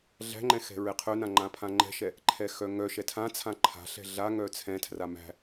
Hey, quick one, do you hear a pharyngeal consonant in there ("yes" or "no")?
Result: no